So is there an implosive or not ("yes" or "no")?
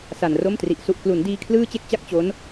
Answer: no